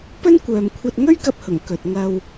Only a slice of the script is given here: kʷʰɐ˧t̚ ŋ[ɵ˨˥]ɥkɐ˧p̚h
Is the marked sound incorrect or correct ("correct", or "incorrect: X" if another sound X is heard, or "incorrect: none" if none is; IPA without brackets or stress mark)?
incorrect: ɵ˥